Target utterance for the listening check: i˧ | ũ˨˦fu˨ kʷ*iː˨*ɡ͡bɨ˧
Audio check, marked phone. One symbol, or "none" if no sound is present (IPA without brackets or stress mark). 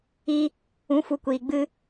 iː˨